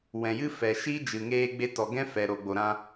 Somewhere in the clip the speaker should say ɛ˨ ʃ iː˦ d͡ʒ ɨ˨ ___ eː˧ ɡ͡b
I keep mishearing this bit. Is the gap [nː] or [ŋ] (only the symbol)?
ŋ